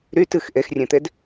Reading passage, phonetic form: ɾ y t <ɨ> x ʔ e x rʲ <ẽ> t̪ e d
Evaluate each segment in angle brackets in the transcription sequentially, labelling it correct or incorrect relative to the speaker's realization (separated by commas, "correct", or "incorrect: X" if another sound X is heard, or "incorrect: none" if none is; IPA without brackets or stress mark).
correct, correct